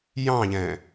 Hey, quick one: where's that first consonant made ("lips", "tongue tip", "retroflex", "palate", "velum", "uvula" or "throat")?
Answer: palate